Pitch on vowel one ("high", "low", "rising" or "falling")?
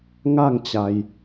falling